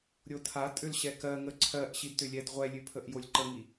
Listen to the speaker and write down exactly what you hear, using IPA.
ɾʲ o tʰ a tʼ ʏ l ɕ ɛ k ɜ ŋ ə ǀʰ ɜ ʔ ɕ i d t ʏ lʲ ɛ d ʁʷ ɛ lʲ ʉ pʰ ə ʔ j o lʲ ǃ ə ŋ i

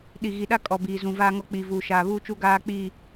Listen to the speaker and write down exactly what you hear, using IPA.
ɗ i˨ ɣ i˨ ɗ a˦ kʼ ɔ˨ b iː˨ z ũ˨ v aː˦ ŋ ɔ˦ k͡p iː˨ v uː˨ ʃ aː˨ β uː˦ t͡ʃ u˦ ɡ aː˦ k͡p iː˦˨

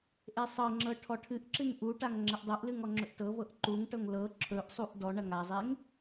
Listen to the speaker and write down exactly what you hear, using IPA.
ʔ e sˤ ɤ ŋ͡ǁ ɤ ʈʰ ɔ ʈʰ ɨ ʔ ǁ ɨ ŋ ʔ u ʈ a ŋ ŋ͡ǁ ɐ ʔ dˤ ɤ ʔ l ɨ ŋ ɔ ŋ͡ǁ ɵ ʔ t ɤ v ɤ ʔ ǃ u ŋ ʈ ɤ ŋ l ɤ ǁʰ ɵ ʔ sˤ u ʔ d ɔ ɳ ɐ ŋ a zˤ e ŋ

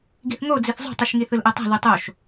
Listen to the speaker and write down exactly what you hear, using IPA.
ɡ i θ ŋ o d͡z i θ zˤ o̤ tˤ i ʃ ŋ i θ ɯ l ʔ ɛ tˤ ɛ̤ ð u tˤ o ʃ

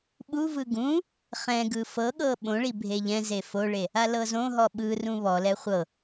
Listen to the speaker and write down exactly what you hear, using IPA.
ɓ u v ɯ ɡ ũ | χ ɛ̃ ɡ ɯ f ɤ ɠ ɤ ɓ õ ɭ i bʱ e ʎ ɛ̃ z e f o ɭ e | a l ɤ z õ ɦ ɔ ɓ ɯ r ũ β ɔ l ɛ χʷ ɤ

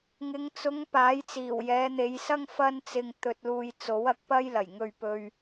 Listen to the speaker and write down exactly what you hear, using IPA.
ŋ ɪ˨˧ ŋ t͡s ʊ˨˧ ŋ p aː˨˥ j t͡s iː˨˩ w j ɛː˨˧ n̪ e˨˧ j s ɐ˥ ŋ f ɐ˥ n t͡s ɪ˧ ŋ t̪ ɵ˧ t̚ l uː˧ j t͡s o˨˥ w ɐ˨˥ k̚ p ɐ˥ j l ɐ˨˩ j ŋ ɵ˧ ɥ p ɵ˥ ɥ

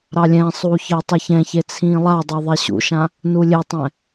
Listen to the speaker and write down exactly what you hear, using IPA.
ɾ ɑ lʲ ɛ̃ sˤ uː ç əː tˤ ɘ ç ɛ̃ ç e t͡sʰ ĩː lˠ a dˤ e ðˤ e ɕ ṵ ʃ ã | n u lʲ e tˤ ɛ̃

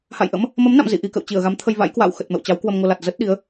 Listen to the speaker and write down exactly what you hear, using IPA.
h a̰˧˨ j ʔ ə̰˧˥ m | m ə˨˦ m n a̰˧˨ m z ḭ˧˨ ʔ i˧ k ə̰˧˨ w t͡ɕ i˧˩ ə̯ ɣ a˨˦ m t̪ʰ ə˧ j v a̰˧˥ j k w a̰ː˧˨ w x ə˨˩ t̚ m ə̰˧˨ w t͡ɕ a˨˦ w k w ə˧ m ŋ o˧ l a˨˩ t̚ z ə˦˥ t̚ ɗ i˨˦ ə̯

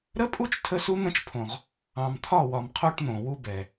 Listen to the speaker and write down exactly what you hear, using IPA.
ɾ ə˦ pʼ u˦ t͡ʃ tʰ ə˦ s u˦ n̪ ə̃˦ t͡ʃ pʰ õ˨ ʁ | ɑ̃˨ m t̪ʰ ɒ˦˨ w ɒ˨ m qʰ o˦ ʈ n̪ õ˨ w u˦ b ɛ˨

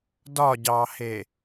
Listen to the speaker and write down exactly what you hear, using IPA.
d ɒ ɟ ɑ h e

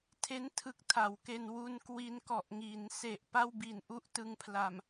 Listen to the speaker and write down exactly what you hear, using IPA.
tʰ e˦˥ n tʰ ɯ˦˥ k̚ tʰ a˩˦ w k e˧ n w u˧ n k w i˧ n k ɔ˨˩ ʔ ŋ iː˩˦ n s e˨˩ ʔ p a˥˩ w b i˨˩ n ʔ u˥˩ ʔ t ɯ˧ ŋ pʰ l a˨˩ m

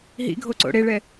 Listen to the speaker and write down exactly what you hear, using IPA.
ɦ ḭ ɡʱ o ǀ o̰ ɽ e ɭ ɛ

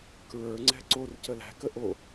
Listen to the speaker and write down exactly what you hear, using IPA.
k ɹ ə˞ ŋ͡ǀ ɛ̤ ǀ o r c ə l æ̤ k ə ʔ o

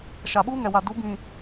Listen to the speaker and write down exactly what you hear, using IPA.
ʃ a˨ ɓ uː˦ ŋ ɛ˨ w a˨ d u˨˦ b ĩ˨

